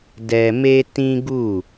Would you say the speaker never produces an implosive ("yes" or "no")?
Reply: yes